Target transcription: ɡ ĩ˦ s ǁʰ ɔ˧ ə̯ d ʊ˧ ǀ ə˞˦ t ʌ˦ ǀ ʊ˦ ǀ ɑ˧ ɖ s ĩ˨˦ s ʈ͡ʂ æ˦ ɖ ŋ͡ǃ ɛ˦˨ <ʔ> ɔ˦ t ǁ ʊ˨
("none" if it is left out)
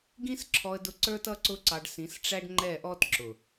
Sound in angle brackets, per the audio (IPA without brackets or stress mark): ʔ